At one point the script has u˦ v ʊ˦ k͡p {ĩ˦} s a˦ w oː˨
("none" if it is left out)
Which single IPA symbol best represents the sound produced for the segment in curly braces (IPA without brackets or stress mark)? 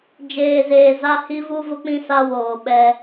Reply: ĩ˦